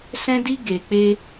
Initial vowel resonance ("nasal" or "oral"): nasal